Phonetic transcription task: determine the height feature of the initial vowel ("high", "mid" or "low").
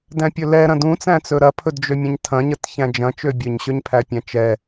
low